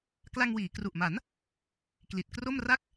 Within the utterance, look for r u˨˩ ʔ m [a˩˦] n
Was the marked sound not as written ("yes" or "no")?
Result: no